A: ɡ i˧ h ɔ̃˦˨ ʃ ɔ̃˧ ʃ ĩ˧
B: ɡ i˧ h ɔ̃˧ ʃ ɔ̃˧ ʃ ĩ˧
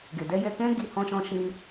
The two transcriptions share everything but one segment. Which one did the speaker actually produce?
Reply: B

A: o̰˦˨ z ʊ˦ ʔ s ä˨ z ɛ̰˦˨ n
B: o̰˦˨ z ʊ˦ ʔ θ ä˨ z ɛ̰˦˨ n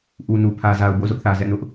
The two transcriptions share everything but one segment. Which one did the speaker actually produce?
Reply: B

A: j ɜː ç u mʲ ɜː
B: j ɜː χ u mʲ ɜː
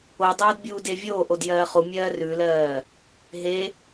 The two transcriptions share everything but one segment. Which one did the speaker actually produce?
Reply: B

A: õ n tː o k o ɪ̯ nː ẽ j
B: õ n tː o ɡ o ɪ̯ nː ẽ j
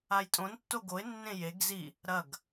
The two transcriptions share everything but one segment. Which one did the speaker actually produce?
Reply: B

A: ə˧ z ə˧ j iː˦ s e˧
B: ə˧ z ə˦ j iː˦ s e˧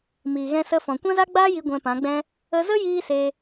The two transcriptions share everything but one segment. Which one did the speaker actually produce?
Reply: B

